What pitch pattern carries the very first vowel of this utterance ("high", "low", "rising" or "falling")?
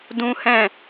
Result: high